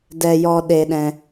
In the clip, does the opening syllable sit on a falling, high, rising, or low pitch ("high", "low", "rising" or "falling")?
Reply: high